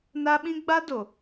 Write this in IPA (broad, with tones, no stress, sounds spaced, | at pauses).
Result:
n a˦ ɓ ĩ˦ ɡ͡b a˦ d o˨